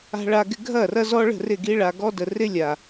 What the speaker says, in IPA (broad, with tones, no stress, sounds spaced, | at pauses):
a̤˨ ɭ a˨ ɡ ɪ˨ ɡʱ ɐ˦˨ r ɐ˦ z ɔ˦ ɭ ə̤˦˨ r ɪ˦˨ ɡ i˦ ɭ a˨ ɡ ɔ˦ d ə˨ r ɪ˦ lʲ a˨